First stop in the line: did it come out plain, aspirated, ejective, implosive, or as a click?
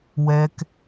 plain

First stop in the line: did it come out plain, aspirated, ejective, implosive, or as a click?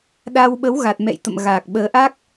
implosive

